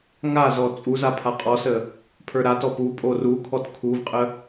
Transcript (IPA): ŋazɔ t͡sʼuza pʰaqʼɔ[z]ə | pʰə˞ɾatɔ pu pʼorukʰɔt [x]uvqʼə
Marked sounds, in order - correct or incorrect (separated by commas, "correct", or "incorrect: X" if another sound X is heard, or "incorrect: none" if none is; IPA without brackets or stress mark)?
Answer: incorrect: s, incorrect: kʰ